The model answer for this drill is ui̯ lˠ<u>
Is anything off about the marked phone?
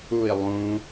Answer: yes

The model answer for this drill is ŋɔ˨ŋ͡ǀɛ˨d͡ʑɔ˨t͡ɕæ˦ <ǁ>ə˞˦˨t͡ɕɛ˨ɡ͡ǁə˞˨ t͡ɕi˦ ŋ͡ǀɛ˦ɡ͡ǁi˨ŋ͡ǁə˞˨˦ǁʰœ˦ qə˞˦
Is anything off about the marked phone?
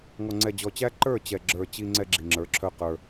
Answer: yes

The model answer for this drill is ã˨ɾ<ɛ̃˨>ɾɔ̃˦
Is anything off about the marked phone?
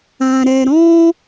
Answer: yes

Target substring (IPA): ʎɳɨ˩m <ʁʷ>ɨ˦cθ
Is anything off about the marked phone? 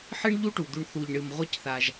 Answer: no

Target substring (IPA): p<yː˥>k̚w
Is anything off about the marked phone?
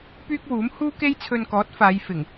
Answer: no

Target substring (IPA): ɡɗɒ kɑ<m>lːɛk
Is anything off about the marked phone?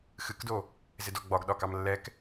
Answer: no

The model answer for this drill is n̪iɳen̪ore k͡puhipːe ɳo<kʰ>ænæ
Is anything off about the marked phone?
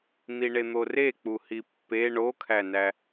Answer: no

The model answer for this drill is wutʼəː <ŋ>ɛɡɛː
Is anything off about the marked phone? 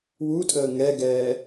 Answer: no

